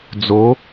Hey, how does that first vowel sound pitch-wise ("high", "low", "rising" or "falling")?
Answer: rising